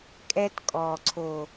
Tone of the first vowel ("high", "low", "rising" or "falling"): high